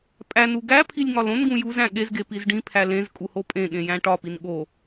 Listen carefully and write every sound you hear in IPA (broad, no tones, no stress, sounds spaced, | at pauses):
pʼ æ n u ɡ æ pʰ i lʲ ŋ ɒ l õ n ɡ ũ j u z æ̃ ɠ e z ɡ e p i z ɖ ĩ pʰ æ l ẽ z kʼ u h o pʼ ẽ ɠ ẽ j æ̃ ʈ ɒ p i n ɠ o